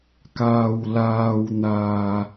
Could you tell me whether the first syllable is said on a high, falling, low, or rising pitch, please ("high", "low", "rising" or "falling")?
low